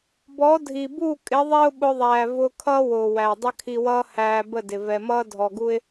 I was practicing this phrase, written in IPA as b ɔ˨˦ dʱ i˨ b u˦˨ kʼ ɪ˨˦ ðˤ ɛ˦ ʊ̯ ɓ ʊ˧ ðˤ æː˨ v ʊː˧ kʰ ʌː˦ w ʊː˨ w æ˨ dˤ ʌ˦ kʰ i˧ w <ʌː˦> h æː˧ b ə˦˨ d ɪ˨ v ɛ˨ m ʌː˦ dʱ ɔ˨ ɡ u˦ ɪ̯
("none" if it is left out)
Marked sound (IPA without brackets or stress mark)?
ʌː˦